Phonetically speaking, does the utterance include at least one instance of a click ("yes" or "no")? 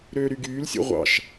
no